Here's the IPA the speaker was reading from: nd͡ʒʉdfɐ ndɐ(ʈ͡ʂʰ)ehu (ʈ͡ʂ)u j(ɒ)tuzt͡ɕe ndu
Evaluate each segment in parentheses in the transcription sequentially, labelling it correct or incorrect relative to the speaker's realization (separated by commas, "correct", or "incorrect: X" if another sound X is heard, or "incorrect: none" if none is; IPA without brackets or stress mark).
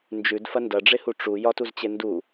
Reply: incorrect: ɖ͡ʐ, correct, correct